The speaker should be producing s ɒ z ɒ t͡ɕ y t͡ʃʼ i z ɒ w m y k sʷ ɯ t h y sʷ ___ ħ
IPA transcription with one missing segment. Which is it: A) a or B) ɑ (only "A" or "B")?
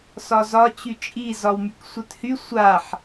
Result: A